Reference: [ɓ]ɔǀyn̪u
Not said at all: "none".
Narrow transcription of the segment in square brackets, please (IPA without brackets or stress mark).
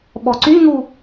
ɓ